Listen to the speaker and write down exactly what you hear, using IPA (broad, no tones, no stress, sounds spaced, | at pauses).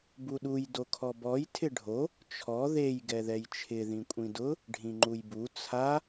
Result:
b u ɗ u j d o kʰ ɔ b ɔ j tʰ ɪ ɖʱ o | t͡ʃʰ ɔ ð e j ɡ ɛ ð ɛ j t͡ʃʰ ɪ ð ĩ kʷʼ ĩ d ʊ | ɖʱ ĩ ŋ͡ǃ u j b u t͡sʰ a